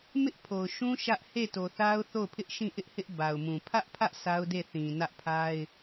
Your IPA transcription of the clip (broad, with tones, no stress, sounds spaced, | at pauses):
m ɪ˦ ʔ pʰ o˨ ʊ̯ ʃ ũ˦ ʃ ä˦ ʔ h e˦˨ t o˨ θ a˦ ʊ̯ θ o˦˨ ʊ̯ pʰ ɪ˦ ʔ ʃ ĩ˦˨ ʔ ɪ˦ ʔ h ɪ˦ ʔ b a˨ ʊ̯ m ũ˨ pʰ ä˦ ʔ pʰ ä˦ ʔ sʰ a˦ ʊ̯ d e˦˨ θ ĩ˨ n ä˦ ʔ pʰ a˦ ɪ̯